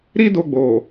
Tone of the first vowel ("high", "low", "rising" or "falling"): high